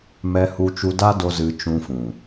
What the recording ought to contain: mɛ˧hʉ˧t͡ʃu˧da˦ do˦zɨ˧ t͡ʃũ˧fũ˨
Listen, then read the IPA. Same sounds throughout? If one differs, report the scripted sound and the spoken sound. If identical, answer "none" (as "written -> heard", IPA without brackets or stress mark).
ʉ˧ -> u˧